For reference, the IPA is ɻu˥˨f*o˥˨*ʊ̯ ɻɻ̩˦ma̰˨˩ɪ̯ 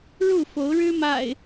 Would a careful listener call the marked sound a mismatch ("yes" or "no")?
yes